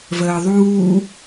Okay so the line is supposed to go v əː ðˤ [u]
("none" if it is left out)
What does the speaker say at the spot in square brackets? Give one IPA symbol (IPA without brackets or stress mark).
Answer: uː